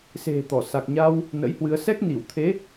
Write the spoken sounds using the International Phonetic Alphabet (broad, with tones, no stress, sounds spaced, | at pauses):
s e̤˨˩ t̪ ɔ˧˩ s a˨˩ k̚ ɲ a˧ w | n ə̰˧˥ j h w ɨ˨˦ ə̯ s ɛ˦˥ k̚ n i˧˩ w t̪ʰ e˨˦